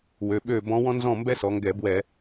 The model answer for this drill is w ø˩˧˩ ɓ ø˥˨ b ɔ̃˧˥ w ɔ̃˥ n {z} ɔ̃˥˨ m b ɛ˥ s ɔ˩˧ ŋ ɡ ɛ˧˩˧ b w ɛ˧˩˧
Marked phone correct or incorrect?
correct